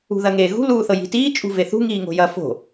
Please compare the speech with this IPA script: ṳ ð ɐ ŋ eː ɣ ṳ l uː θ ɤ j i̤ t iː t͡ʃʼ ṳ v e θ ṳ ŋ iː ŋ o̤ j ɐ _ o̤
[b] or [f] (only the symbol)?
f